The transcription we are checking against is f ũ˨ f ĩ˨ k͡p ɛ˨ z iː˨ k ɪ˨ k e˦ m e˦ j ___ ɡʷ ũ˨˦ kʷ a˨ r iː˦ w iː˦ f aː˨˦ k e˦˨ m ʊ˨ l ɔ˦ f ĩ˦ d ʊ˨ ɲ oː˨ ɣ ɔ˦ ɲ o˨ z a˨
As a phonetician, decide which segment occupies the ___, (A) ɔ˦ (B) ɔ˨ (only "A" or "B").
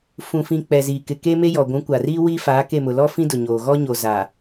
B